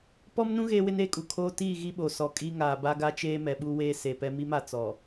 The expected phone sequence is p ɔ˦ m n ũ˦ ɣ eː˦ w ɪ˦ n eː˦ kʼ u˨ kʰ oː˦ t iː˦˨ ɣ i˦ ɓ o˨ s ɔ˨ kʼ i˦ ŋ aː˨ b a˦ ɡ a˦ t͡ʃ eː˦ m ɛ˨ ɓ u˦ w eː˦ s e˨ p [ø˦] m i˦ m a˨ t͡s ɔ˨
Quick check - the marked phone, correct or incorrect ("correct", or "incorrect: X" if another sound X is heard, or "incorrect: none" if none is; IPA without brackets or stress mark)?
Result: incorrect: ɛ˦